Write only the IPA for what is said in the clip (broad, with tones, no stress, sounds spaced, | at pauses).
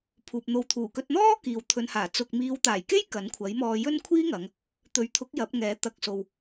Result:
pʰ uː˨ p̚ n̪ o˧ w t̪ʰ uː˨˩ k ɵ˧ t̚ n̪ ɔː˥ k iː˨ w t̪ʰ ɵ˨˧ n h aː˨˩ t͡s ʊ˨ k̚ m iː˨˧ w t̪ aː˨˩ j k e˥ j k ɐ˨˥ n kʷʰ ɐ˨˥ j m ɔː˧ j ɵ˥ n kʷʰ iː˥ ŋ ɐ˨˧ ŋ | t̪ ɵ˨˥ ɥ t̪ʰ ʊ˨˥ k̚ j ɐ˨˥ p̚ ŋ ɛː˨˥ t̪ ɐ˨ k̚ s o˨ w